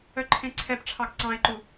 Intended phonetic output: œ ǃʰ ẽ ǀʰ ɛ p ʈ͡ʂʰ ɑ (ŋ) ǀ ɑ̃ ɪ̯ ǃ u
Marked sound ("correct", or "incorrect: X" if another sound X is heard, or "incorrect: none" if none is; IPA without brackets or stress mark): incorrect: ɡ